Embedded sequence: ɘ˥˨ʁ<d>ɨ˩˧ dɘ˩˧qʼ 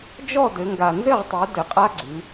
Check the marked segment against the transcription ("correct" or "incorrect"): incorrect